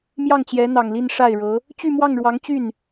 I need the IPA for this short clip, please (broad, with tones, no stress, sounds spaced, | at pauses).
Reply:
m j ɑ˥˩ ŋ t͡ɕ j ɛ˧˥ n̪ ɑ˨˩ ŋ l i˥˧ n ʂ a˥˩ ɪ̯ ɻ ɤ˧˥ | t͡ɕ y˥˧ m w ɑ˥˩ ŋ ɻ w ɑ˧˥ ŋ t͡ɕ y˥˩ n